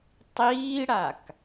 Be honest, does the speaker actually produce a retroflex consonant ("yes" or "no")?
yes